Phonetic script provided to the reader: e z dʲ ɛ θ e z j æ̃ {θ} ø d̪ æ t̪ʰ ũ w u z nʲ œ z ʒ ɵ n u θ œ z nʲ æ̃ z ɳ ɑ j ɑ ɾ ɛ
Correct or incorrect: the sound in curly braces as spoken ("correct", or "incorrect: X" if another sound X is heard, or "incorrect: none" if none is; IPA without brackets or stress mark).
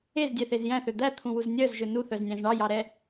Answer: correct